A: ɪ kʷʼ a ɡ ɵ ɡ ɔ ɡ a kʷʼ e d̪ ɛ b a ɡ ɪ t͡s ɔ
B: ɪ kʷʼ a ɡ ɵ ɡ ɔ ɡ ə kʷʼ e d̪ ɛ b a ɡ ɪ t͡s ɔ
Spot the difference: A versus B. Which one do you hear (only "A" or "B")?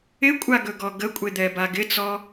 B